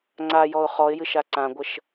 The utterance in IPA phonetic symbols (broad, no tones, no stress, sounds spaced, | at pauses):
ŋ͡ǀ a j ɔ ʊ̯ χ ɔ ɪ̯ j ɨ ʃ a ǀ ã ɡʷ ə ʃ